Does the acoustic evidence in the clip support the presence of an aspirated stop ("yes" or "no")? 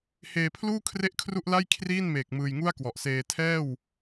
yes